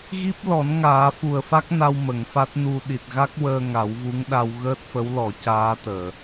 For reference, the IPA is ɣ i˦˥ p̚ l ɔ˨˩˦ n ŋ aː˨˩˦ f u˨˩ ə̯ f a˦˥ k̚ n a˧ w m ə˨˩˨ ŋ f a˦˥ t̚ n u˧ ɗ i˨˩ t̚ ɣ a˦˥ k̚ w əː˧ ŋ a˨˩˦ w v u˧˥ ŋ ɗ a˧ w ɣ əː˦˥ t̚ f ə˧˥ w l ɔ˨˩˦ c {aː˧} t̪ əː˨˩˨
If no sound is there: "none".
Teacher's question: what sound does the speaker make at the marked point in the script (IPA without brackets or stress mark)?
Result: aː˧˥